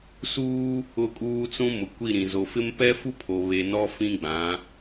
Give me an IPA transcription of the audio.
s uː˦ | ʊ˦˨ kʼ uː˦ t͡s ũ˦ m ʊ˨ kʷ i˦˨ ɾ ĩ˨ z o˨ f ɪ˦ m p ɛ˦ f u˦ pʰ o˨ β e˨ n ɔ˦ f ĩ˦ ɡ͡b ã˨˦

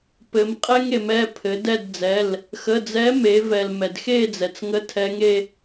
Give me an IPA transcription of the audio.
p ɘ˩˧ m qʼ ɛ˦ ŋ e˩˧ m ɛ˩˧˩ pʰ ɘ˩˧ d ɛ˦˨ d d͡z ɛ˩˧˩ l | x ə˩˧˩ d͡z ɛ˨˥ m e˩˧ v ɛ˩ l m ɛ˩ d x e˦˨ d͡z ɛ˩ t͡s ŋ ə˨˥ tʰ ɛ˨˥ ŋ e˦

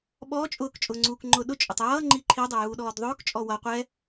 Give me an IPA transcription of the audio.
ɓ ɔː t͡ʃʼ ʊː k t͡ʃʼ ʊː ŋ͡ǀ uː k ŋ͡ǃ ʊː ɗ ʊ t͡ʃʼ ʊ tˤ j ʌː ŋ͡ǃ i ǃʰ i dˤ ɘ j uː ɗ ɔː d ðˤ ʊː k t͡ʃʼ ɔ w ʌ qʷ ɛ

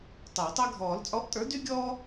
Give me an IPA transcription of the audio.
tˤ ɘː˨˩˦ tˤ ɛ˦ ɡʱ ɔː˨˩˦ l t͡sʼ ɔ˨˥ ʔ tʼ ə˞˨˥ d y˦ ɡʲ ɔː˦

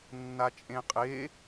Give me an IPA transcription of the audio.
nː a t͡ʃʼ ẽ qʼ e

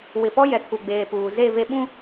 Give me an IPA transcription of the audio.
w ɪ˨ p ɔ˦ j ɛ˨ kʰ u˨ ɡ͡b eː˨ p uː˨ z e˦˨ v e˦ ɓ ũ˦

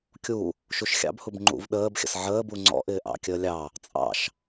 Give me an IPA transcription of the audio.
kʲ u | ʃ u ʃ xʲ ɑ̰ b h u b ŋ͡ǃ ṵ v ɗ əː b xʲ ə̰ s ʕ əː b u ŋ͡ǀ ɔ̰ ʔ ɪː ʔ ɑ̰ kʲ əː lʲ ɑ | t͡sʼ ɑ̰ ʃ

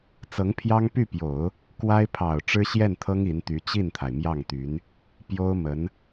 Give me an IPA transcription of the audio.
t͡s ɤ˧˥ ŋ pʰ j ɑ˥ ŋ p y˥˩ p j o˨˩˦ ʊ̯ | k w a˥ ɪ̯ pʰ ɑ˨˩ ʊ̯ ʈ͡ʂ ɻ̩˥ ɕ j ɛ˥˩ n t̪ʰ ɤ˥ ŋ i˧˥ n t̪ y˧˥ t͡ɕ i˥˩ n t̪ʰ a˩ ɪ̯ m j ɑ˥˩ ŋ t̪ y˧˥ n | p j o˥ ʊ̯ m ə˧˥ n

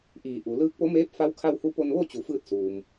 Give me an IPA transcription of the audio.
ʔ iː˧˩ ʔ u˩˧ l ɯː˧˥ k̚ p o˧˥ m eː˧˥ p̚ f a˧˥ w kʰ a˧ w h u˧ p o˧ n ʋ o˥˨ t͡ɕ u˩˧ f ɯː˧ t̚ s uː˩ m

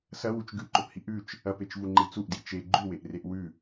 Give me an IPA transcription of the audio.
s ɐ w u t͡ʃ ɡ ʉ ǃ ɵ p h i ʔ ʉ t͡ʃ | ɐ p e t͡ʃ v u ŋ͡ǃ i t͡s u ʔ d i t͡ʃ e ɡ͡ǃ ʉ w e ʔ r e ʔ w ʉ

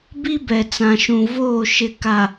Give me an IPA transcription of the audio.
b i˦ b ɛ˨ t͡s ã˨ ʃ ũ˨ v oː˦˨ ʃ ɪ˨ k a˨

